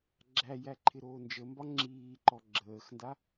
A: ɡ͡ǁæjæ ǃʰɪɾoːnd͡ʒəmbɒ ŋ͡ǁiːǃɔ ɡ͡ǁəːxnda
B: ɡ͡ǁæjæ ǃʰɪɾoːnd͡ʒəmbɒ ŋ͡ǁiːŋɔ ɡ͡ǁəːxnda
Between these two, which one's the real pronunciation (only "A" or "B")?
A